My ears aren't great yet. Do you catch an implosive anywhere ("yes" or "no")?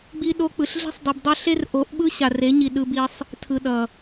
yes